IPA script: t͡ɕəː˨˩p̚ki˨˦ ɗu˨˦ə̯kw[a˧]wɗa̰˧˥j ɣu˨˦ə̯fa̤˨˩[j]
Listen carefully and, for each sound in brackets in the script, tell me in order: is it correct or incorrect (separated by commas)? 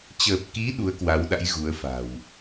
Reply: incorrect, incorrect